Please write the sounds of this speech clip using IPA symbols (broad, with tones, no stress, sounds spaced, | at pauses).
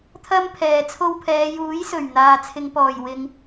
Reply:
t̪ʰ ɐ˥ m pʰ ɛː˨ t͡sʰ o˧ w pʰ ɛː˨˧ j uː˨˥ j s ɵ˨˩ ɥ n̪ aː˨ t͡sʰ ɪ˨˧ ŋ p ɔː˨˩ j w ɪ˨ ŋ